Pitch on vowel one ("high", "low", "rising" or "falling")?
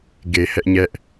low